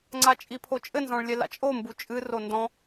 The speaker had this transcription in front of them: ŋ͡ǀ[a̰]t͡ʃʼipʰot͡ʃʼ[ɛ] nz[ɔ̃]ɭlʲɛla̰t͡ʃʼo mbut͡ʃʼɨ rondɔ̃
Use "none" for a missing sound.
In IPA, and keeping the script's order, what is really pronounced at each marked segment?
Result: a, ɘ, ɔ̃

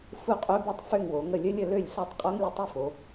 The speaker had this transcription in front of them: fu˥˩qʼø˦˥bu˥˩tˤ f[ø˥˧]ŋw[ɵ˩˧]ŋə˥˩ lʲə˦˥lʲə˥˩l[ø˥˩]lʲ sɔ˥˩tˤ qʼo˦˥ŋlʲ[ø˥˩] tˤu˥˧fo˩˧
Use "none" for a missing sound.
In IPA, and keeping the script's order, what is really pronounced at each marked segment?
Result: ø˥˧, o˩˧, ø˥˩, ə˥˩

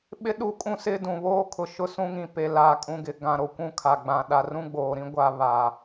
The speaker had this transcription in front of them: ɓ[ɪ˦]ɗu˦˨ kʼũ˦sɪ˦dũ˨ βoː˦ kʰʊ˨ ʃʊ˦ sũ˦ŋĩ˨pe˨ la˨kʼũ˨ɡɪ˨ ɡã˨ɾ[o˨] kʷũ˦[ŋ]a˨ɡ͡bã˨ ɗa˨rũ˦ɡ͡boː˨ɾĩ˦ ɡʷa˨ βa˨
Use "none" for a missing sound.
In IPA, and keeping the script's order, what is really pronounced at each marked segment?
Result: ɪ˦, o˨, kʰ

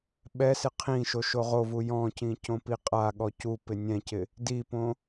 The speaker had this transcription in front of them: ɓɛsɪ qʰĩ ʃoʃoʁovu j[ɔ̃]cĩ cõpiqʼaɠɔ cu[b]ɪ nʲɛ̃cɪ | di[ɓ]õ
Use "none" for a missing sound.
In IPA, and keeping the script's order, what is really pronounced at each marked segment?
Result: ɔ̃, p, p

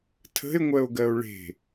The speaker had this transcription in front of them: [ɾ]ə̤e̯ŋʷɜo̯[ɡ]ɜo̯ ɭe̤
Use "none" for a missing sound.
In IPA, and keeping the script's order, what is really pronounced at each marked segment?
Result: tʰ, ɡ

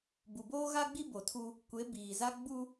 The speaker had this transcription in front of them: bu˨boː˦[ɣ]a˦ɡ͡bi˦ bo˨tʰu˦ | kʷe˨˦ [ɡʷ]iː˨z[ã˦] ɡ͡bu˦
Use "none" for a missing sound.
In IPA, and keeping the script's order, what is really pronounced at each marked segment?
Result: ɣ, b, a˦

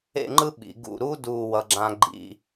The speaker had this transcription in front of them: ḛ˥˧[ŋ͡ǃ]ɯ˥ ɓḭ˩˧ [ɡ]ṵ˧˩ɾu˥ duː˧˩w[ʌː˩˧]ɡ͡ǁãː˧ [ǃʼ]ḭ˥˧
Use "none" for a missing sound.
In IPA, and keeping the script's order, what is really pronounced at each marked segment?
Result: ŋ͡ǃ, ɡ, ʌ˩˧, ɡ͡ǃ

